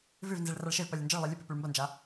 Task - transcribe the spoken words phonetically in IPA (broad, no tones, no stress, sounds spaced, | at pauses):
v ʉ v n z i ɭ r a ɭ ʃ e v p ɐ lʲ ɐ n d͡ʒ ɐ ɭ lˠ i lʲ ɵ p ʉ p ʉ ɭ m b ɐ n d͡ʒ a